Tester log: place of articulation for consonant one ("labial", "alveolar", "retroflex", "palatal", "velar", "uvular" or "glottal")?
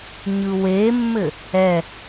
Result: palatal